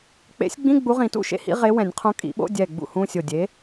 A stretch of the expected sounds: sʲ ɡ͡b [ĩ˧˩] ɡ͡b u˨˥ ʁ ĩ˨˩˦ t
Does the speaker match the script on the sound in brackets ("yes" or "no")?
no